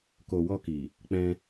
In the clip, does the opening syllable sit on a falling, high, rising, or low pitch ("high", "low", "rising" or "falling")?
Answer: low